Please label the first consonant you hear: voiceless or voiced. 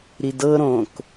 voiced